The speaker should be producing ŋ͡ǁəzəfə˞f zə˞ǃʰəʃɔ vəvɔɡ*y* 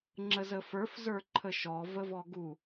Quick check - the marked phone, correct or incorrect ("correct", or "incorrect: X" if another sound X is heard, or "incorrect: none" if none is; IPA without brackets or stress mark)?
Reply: incorrect: u